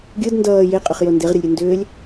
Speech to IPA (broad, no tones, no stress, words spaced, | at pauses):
ɡʲɯd ndʌː jeqʼʏχjo ndeʁɾʲʌlʲɾʲɯ ndʏːlʲ